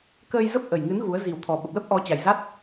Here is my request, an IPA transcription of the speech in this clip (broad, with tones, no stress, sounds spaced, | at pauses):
k əː˧ j z ə˦˥ p̚ ʔ ə˨˩ j ŋ ɨ˨˦ n ɣ u˨˦ ə̯ z i˨˩ w t̪ʰ ɔ˨˩ ɓ ə˨˩ p̚ l ə˦˥ p̚ ʔ ɔ˨˦ t͡ɕ a˨˩ j z a˦˥ t̚